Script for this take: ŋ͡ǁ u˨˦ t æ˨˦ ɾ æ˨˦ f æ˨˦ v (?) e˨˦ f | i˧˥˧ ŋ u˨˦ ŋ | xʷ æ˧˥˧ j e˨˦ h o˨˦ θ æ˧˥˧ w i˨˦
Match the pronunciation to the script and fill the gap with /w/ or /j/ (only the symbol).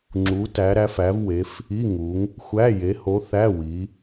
w